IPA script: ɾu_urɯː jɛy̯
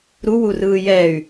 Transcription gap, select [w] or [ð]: w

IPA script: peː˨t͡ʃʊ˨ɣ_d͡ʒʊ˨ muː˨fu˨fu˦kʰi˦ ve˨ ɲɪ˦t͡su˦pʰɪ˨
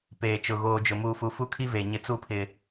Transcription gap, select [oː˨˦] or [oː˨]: oː˨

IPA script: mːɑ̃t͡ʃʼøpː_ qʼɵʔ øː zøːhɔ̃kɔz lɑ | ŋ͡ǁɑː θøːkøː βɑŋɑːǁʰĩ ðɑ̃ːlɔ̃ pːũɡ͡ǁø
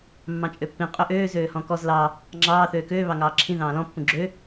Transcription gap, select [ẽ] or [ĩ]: ĩ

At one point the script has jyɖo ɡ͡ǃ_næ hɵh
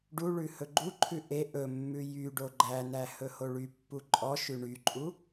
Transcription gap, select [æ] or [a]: æ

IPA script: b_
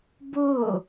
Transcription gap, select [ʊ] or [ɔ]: ʊ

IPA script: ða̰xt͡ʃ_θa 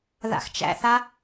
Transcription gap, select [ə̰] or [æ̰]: æ̰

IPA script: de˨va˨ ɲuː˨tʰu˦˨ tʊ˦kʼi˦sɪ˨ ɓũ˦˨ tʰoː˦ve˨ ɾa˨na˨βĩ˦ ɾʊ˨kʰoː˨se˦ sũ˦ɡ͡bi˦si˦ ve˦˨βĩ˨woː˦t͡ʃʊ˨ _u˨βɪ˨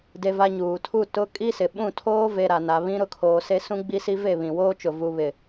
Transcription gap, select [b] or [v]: v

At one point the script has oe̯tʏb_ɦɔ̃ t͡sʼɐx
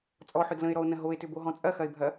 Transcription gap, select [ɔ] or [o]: o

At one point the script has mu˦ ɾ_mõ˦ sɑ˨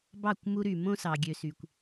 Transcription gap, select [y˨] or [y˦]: y˨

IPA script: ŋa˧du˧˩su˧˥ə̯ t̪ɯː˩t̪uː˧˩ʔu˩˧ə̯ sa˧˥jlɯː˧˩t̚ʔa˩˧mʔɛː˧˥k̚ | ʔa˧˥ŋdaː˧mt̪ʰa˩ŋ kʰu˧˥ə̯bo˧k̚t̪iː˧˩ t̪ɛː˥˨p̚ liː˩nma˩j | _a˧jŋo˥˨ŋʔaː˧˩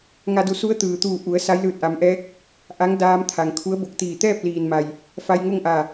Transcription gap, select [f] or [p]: f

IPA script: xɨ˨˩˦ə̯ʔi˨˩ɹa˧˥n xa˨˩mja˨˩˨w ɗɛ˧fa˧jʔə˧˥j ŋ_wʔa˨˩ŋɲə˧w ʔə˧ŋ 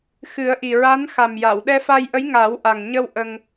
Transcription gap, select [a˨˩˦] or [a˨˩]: a˨˩˦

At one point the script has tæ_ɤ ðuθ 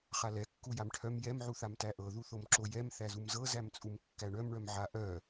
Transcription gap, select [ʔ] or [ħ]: ʔ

